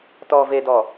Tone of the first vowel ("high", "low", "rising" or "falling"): low